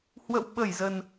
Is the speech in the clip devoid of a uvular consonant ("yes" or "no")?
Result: yes